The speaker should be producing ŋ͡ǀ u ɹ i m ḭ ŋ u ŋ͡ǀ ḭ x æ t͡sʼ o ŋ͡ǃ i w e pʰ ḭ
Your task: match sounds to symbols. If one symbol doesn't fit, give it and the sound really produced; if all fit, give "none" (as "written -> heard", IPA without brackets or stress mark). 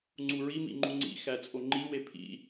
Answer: ŋ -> ŋ͡ǃ